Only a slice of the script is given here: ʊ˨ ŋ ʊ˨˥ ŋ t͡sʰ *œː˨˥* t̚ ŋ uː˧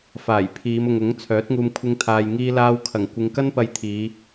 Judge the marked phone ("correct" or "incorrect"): correct